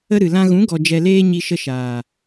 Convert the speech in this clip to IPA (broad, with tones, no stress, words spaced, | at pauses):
ə˦ɾɨ˨lã˦ ɣũ˨˦ɡɔ˨ d͡ʒɛ˨leː˧ ɲi˧ʃə˧ʃaː˨